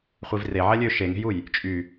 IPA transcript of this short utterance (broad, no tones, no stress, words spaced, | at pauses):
χʷivre ʕɛlʲø ʃeŋe̤juj | t͡ʃʼy